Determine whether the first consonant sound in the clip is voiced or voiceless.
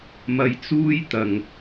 voiced